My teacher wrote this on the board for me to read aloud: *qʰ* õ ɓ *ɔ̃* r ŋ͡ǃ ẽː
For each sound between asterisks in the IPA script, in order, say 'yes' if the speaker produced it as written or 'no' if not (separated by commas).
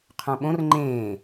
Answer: yes, no